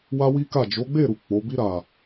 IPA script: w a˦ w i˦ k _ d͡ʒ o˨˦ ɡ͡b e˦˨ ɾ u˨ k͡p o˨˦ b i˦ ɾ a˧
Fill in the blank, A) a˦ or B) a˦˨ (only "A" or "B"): B